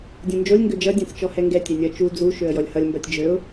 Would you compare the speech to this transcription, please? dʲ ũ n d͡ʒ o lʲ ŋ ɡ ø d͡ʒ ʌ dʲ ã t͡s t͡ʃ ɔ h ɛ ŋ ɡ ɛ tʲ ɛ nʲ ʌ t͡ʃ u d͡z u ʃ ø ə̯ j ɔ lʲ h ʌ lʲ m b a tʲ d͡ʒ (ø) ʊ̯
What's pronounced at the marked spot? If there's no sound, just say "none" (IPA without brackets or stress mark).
ø